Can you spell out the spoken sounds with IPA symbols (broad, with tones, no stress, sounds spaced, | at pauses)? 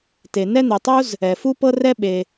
t e˩ n ɛ˥ n̪ ɛ˩ tˤ u˥ z | ɛ˩ f u˥ p ɤ˥ r ɛ˥ ɓ e˩